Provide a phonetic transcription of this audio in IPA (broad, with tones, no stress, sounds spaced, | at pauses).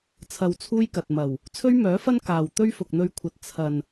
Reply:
t͡sʰ ɐ˧ w t͡sʰ uː˥ j k ɐ˨ t̚ m ɐ˨˩ w | t͡sʰ ɵ˥ ɥ m œː˨˥ f ɐ˥ n k aː˨ w t̪ ɵ˥ ɥ f ʊ˨ k̚ n̪ ɵ˧ ɥ kʷʰ ɐ˨ t̚ t͡sʰ ɐ˨ n